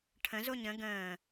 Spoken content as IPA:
ʈʰ ə̃ z o ɲ ə̃ ɡ ə̃ː

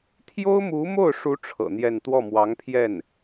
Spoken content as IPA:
t̪ʰ j o˥ ʊ̯ m u˧˥ m o˥˩ ʊ̯ ʂ u˧˥ ʈ͡ʂʰ ɤ̰˨˩ n̪ j ɛ˥˧ n t̪ w ɔ˥˩ m w ɑ˧˥ ŋ pʰ j ɛ˥˩ n

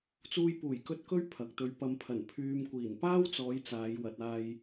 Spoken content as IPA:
t͡s uː˧ j p uː˨˩ j k ɵ˧ t̚ k ɵ˥ ɥ pʰ ɐ˨ k̚ t̪ ɵ˨˧ ɥ p ɐ˨ m pʰ ɐ˨˩ n pʰ yː˧ m kʷ iː˨˩ n p aː˥ w t͡s ɔː˨˧ j t͡s aː˨˧ j w ɐ˨ t̚ aː˧ j

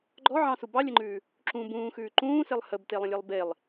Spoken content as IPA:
ɡ͡ǃ ɔ ʕ ɑ̃ s u b ɑ lʲ ə ŋ͡ǃ ʉː | ǁ ũ b ũː x ʉː ǃ ũː s e lˠ h ə b t e lˠ ə̃ lʲ e lˠ b e lˠ

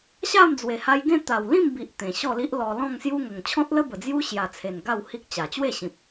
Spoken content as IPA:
ɕ a˥˧ m d͡z w e˨˩ h a˧ j ɡ ẽ˥˧ t̪ a˨˩ w l ĩ˥˧ m b i˨ ʔ t̪ ẽ˨˩ ɕ ɔ˥˧ l i˦ ʔ l ɔ˧ l ɔ̃˥˧ ŋ s j u˦ ŋ ə˨˩ ŋ t͡ɕʰ ɔ̃˦ t̚ l ə˦ b ə˨˩ d͡z j u˦ ɕ j a˨˩ t͡sʰ e˨˩ n ɡ a˥˧ w h i˦ k̚ t͡ɕ a˨˩ t͡ɕ w e˥˧ ɕ ĩ˨ p̚

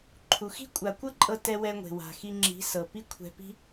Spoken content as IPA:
ǃʰ u˨ x i̤˦ kʷʼ a˨ kʷ ɤ˦ ǃʼ ɤ˧ t ɛ˧ w ɛ˧ ŋʷ e̤˨ w a̤˨ x i˧ ŋ͡ǁ i̤˨˦ s ɤ˨ p i˦ kʷʰ ɛ̤˧ p i̤˦

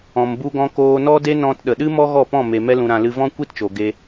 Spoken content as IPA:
ɔ̃˨ m b u˧ ɡ ɔ̃˧ k oː˧ n ɔ˦ d e˦ n ɔ̃˧ t ɗ ə˨ ɗ ɨ˦ m ɔ˦ ɣ ɔ˦˨ p ɔ̃˦˨ m e˧ m ɛ˧ l ũ˨ ɾ ã˨ l ɨ˧ v ɔ̃˦ kʷ i˦ t t͡ʃ o˨ ɡ e˧

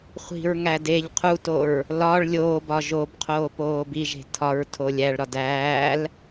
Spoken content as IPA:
χʷ i̤ ɹ ŋ æ d e ʎ qʰ u t o ɹ | l ɒ ɭ lʲ oː b ɒ ʒ o b qʰ oː p oː b i ʒ e̤ tʰ ɒ ɹ tʰ o lʲ æ ɭ ɾ ɒ d æː l

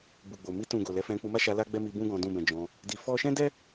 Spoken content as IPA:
b u˨ ɡ͡b o˨ m i˧ t ũ˨ ɡ o˨ l ɛ˨˦ f ɛ̃˧ k͡p u˧ m a˦ ʃ a˧ l a˦ ɡ͡b ɛ˦ m i˧ b ũ˦ ɡ ɔ̃˧ d ũ˦ b ɛ̃˧ d͡ʒ ɔ̃˧ | d i˧ f ɔ˦ ʃ ɛ̃˦ d ɛ˦

